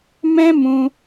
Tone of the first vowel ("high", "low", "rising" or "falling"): high